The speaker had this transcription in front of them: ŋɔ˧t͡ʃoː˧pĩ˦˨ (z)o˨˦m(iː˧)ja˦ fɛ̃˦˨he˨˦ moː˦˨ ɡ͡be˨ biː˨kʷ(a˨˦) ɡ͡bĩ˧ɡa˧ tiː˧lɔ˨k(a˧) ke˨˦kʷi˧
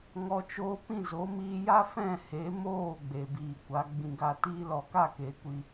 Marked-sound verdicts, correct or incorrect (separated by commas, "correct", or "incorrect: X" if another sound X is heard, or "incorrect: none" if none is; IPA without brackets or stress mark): correct, correct, correct, incorrect: a˦˨